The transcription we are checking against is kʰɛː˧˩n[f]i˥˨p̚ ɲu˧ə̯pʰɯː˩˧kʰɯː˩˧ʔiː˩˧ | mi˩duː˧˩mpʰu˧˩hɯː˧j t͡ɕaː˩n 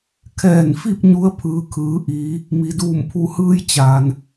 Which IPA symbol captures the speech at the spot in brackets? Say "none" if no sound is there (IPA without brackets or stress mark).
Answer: f